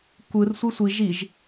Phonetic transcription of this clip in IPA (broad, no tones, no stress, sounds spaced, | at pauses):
kʷ ɯ r sʷ i sʷ i ʒ i ʒ